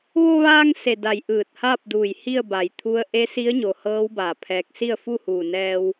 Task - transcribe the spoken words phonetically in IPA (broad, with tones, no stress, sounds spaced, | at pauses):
ʋ o˧ ʋ aː˧ ŋ s e˧˩ d a˧˩ j ʔ ɯː˧˩ t̚ h aː˥˨ p̚ d uː˧˩ j h i˥˨ ə̯ b a˩ j t̪ʰ u˧˥ ə̯ ʔ e˧˥ s i˧˥ ə̯ ɲ o˩ h ɤː˧˥ w b aː˧˩ pʰ ɛː˧˥ k̚ s i˥˨ ə̯ f u˥˨ h uː˧˩ n ɛː˧ w